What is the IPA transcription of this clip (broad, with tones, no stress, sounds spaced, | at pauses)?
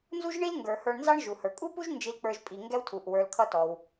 n z u˥ ʒ ɳ i˥ l ŋ ɡ ə˞˩ h ə˞˧ ɳ n z ɑ˥ ɳ ʒ u˩ h ə˞˩ kʼ u˥ p u˥ ʒ n d͡ʒ i˧ l k͡p ə˞˧ ʒ pʼ i˩ ŋ ɡ ɛ˥ w tʰ u˩ ʔ w ə˞˧ l kʰ ʌ˥ t ɔ˩ w